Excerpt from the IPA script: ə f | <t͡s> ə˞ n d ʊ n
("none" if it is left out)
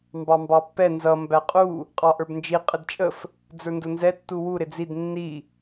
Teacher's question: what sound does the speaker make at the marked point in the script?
d͡z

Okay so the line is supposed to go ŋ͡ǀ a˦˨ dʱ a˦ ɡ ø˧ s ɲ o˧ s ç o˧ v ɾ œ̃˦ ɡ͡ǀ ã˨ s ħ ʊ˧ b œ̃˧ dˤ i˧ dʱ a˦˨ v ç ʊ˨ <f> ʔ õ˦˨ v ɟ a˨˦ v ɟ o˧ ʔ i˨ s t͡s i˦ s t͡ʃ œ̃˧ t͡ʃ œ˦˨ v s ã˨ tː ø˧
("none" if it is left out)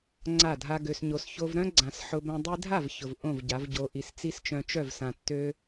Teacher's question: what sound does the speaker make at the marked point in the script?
v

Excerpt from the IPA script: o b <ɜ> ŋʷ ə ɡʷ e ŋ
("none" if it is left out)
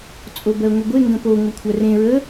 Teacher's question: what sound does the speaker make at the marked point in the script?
ɜ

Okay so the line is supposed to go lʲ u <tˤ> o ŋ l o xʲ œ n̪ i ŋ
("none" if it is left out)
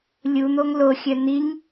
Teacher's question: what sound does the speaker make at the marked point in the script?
n̪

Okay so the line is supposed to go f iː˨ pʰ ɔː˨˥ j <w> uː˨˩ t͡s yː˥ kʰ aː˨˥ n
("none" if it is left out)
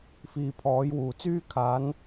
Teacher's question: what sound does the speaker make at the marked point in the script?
w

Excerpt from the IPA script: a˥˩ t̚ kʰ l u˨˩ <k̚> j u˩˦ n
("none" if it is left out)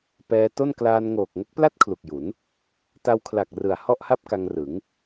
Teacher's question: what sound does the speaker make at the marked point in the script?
k̚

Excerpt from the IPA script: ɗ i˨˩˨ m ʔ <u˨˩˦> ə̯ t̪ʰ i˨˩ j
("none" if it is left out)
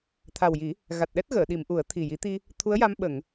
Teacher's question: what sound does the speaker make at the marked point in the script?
u˨˩˦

